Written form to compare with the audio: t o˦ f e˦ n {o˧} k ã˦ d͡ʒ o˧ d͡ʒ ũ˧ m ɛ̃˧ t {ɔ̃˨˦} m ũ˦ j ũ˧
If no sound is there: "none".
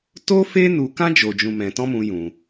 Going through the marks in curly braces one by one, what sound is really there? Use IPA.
u˧, ɔ̃˦

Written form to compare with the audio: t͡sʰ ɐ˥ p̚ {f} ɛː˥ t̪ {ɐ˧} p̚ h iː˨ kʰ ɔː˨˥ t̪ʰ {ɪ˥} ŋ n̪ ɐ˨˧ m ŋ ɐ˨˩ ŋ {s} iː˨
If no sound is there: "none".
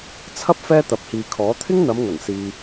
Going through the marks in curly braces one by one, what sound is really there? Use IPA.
f, ɐ˨, ɪ˥, s

